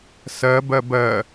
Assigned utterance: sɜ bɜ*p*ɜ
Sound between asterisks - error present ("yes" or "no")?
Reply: yes